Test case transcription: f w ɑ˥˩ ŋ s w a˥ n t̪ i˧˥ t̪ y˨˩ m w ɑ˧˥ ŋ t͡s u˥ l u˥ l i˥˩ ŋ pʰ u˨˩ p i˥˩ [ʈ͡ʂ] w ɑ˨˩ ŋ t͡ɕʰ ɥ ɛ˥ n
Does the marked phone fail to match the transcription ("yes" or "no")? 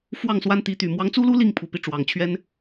no